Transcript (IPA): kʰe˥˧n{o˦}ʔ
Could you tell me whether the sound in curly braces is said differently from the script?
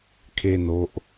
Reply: no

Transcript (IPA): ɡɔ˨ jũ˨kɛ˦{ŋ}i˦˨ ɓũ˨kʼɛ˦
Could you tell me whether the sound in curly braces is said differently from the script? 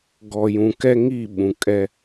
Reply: no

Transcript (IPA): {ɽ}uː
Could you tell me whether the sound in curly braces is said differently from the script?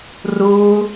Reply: yes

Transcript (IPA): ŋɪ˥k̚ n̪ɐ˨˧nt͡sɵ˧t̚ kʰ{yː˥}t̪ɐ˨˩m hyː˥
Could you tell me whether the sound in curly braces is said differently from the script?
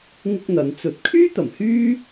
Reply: no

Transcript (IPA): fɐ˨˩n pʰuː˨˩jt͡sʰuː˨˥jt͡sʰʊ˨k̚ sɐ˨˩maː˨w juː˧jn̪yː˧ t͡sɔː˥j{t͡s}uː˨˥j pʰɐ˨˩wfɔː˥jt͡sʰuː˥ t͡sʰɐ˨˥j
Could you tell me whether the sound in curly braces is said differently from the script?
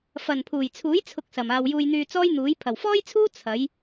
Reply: yes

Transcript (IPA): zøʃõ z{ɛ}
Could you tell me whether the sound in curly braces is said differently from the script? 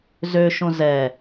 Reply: no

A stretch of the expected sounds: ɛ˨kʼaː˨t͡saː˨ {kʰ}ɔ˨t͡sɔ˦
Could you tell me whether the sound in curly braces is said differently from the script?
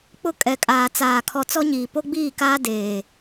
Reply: no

